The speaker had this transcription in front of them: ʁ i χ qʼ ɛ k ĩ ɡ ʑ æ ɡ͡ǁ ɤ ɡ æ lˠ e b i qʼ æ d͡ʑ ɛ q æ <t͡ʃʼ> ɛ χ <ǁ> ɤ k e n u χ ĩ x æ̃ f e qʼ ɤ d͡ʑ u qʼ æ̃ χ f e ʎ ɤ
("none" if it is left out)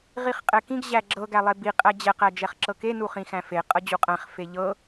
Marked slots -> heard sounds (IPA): d͡ʒ, ǁ

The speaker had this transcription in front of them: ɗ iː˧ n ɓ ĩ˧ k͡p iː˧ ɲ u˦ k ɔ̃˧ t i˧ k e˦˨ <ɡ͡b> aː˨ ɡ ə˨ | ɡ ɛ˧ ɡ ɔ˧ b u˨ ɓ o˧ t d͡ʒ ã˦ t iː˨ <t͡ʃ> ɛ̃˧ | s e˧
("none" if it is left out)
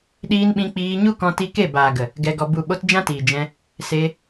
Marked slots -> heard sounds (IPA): b, d͡ʒ

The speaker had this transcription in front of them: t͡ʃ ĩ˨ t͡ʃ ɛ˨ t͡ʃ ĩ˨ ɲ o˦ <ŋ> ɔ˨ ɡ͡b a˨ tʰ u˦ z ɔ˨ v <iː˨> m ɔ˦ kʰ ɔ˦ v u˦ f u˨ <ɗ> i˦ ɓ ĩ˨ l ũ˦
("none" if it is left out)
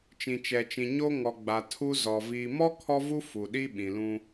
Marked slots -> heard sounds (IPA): ŋ, iː˨, ɗ

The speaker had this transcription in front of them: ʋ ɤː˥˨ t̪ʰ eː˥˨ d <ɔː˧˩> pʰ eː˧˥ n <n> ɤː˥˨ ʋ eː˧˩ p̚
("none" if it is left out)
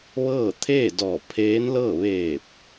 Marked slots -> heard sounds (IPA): ɔː˧˩, l

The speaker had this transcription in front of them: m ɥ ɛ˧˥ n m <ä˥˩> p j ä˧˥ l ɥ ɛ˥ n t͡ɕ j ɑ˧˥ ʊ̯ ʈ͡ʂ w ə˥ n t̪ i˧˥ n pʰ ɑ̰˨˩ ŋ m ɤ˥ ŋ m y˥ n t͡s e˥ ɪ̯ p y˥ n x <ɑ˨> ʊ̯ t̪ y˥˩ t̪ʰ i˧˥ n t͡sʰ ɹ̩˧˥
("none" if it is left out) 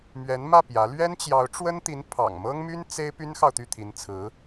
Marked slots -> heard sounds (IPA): ä˥˩, ɑ˨

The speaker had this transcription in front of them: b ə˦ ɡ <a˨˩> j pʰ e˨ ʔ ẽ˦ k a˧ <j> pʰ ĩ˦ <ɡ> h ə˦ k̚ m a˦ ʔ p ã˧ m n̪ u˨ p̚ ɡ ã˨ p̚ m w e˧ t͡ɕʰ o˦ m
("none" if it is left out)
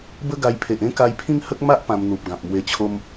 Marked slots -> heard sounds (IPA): a˧, j, ŋ

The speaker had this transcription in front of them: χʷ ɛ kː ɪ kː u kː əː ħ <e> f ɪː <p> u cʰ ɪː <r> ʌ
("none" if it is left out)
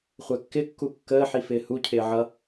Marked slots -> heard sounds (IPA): i, h, ʕ

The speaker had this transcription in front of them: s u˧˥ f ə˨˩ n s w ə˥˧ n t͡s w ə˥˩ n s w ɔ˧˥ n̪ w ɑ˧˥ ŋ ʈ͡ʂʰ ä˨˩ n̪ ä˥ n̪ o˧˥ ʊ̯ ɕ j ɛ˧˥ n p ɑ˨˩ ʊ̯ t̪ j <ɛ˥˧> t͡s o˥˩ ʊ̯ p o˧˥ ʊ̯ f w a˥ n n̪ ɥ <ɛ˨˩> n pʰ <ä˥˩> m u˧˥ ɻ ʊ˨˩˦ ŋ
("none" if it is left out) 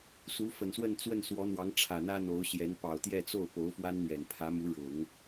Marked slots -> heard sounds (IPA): ɛ˥˧, ɛ˨˩, ä˧˥

